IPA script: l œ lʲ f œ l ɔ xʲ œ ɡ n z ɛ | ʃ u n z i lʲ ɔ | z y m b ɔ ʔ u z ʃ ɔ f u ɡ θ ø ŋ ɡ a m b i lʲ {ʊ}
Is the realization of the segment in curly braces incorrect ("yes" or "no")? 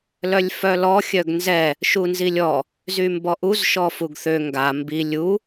yes